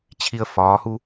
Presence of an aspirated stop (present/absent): present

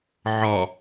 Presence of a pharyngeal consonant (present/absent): present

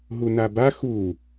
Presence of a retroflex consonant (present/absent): absent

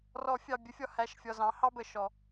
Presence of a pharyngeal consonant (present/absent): absent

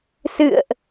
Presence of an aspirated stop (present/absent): absent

